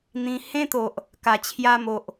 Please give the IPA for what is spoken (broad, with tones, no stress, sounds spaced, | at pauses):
n̪ ĩ˧ h ẽ˦ t̪ o˨ ʔ | k a˨˩ t͡ɕʰ j a˧ m o˨ ʔ